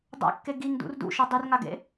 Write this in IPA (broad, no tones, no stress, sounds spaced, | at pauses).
dˤ a̰ kː e ɡ i ŋ d ṵ r d ṵ ʃ ʌ dˤ i r ŋ a ɡ ḛ